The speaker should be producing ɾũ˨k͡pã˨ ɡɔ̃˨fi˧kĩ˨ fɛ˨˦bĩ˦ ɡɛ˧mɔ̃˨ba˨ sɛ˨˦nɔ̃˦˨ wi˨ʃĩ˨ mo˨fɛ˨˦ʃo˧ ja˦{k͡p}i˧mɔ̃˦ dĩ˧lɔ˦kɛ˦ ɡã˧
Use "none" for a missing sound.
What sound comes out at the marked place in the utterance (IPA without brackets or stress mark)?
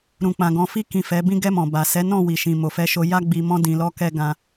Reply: ɡ͡b